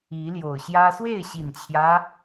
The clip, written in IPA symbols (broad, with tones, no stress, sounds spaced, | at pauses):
i˨˦ l j o˨˩ ʊ̯ ɕ j ä˦ s w e˥˨ ɪ̯ ɕ i˨˩ n t͡ɕʰ j ä˦